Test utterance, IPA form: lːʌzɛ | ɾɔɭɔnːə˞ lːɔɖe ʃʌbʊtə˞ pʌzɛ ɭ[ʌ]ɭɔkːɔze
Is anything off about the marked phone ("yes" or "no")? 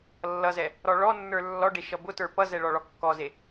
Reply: yes